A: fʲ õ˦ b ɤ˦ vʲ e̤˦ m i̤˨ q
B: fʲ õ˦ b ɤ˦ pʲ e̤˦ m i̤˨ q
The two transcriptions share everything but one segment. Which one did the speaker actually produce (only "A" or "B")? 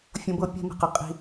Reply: B